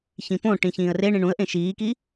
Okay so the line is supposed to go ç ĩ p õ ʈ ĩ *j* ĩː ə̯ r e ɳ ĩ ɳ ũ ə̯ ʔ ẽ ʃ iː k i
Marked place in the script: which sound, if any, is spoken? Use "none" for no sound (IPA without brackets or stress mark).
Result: ç